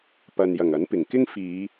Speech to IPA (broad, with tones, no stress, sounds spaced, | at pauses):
p ɐ˨ n j ɐ˨˩ ŋ ɐ˨˥ n p ɪ˨˩ ŋ k ɪ˥ ŋ f iː˨˧